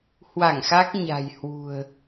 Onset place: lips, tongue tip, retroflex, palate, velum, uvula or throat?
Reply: throat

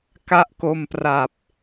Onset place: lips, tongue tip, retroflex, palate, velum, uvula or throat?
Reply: velum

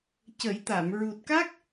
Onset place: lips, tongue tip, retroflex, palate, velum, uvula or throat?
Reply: palate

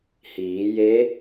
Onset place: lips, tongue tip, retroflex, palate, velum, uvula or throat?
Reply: throat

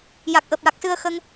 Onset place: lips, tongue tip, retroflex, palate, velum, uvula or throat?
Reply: palate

